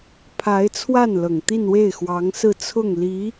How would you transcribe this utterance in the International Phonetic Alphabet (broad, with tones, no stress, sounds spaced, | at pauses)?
pʰ a˧˥ ɪ̯ t͡sʰ w a˥˩ n l ɤ˨˩ ŋ t̪ i˥˧ n w e˥˩ ɪ̯ x w ɑ˧˥ ŋ s ɹ̩˥˧ t͡sʰ ʊ˥˩ ŋ l i˧˥